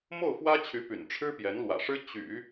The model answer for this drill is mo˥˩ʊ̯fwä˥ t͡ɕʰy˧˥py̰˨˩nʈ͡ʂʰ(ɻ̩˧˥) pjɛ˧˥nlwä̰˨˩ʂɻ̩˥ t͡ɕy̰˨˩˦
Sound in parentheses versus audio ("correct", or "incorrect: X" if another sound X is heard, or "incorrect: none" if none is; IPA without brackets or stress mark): incorrect: ɻ̩˥